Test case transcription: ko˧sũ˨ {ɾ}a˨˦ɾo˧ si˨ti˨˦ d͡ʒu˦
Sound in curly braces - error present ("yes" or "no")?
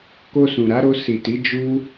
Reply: no